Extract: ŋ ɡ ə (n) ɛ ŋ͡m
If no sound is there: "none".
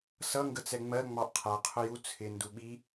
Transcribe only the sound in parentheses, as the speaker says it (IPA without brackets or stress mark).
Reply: t͡s